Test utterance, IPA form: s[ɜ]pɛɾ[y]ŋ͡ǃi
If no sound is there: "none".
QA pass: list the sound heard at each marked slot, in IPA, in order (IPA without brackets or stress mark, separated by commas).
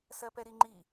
ɜ, i